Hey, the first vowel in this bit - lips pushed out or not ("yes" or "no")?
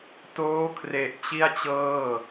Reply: yes